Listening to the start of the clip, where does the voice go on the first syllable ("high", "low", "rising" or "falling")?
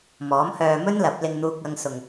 rising